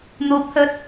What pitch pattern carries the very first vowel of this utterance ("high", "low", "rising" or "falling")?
rising